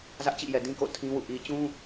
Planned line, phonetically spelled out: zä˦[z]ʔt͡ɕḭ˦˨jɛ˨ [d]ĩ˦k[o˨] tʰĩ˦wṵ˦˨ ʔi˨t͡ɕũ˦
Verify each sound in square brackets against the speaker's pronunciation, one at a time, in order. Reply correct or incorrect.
incorrect, correct, incorrect

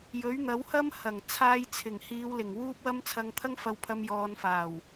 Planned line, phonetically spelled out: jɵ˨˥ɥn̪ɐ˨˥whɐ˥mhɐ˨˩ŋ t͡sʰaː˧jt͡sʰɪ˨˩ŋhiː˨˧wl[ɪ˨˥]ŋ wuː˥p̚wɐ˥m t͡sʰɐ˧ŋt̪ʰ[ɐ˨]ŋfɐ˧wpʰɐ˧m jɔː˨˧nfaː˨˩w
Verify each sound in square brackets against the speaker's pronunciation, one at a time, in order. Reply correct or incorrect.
incorrect, incorrect

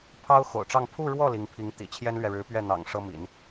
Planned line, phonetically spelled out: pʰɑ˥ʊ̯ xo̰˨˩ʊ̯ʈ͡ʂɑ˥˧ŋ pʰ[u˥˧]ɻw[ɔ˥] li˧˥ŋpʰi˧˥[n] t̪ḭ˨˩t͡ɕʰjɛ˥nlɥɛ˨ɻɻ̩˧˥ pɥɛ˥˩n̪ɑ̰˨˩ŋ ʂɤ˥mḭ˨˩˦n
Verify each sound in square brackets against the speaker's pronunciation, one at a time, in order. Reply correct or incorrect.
correct, incorrect, incorrect

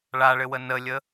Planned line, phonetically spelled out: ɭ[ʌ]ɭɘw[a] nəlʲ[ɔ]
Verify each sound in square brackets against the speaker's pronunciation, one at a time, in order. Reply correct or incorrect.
incorrect, incorrect, incorrect

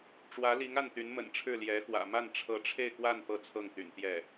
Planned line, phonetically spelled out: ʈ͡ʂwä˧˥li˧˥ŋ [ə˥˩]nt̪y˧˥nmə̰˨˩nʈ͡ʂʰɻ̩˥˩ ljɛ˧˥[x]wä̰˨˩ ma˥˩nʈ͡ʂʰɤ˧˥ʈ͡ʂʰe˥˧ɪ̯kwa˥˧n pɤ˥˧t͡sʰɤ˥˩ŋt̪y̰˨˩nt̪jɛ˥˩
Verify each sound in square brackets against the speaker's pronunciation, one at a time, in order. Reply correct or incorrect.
incorrect, correct

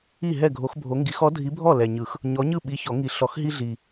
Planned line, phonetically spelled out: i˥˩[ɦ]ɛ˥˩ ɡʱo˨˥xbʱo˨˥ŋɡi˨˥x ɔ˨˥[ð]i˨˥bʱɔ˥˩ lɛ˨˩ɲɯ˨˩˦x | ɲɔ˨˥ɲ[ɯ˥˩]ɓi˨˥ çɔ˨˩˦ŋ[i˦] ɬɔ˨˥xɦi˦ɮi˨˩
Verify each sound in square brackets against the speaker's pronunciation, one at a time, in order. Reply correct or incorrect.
correct, incorrect, correct, incorrect

